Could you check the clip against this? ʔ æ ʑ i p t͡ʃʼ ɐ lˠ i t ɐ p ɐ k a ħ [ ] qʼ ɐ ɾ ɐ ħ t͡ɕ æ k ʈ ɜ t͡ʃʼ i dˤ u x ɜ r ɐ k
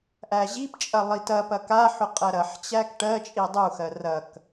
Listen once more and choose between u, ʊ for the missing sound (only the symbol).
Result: ʊ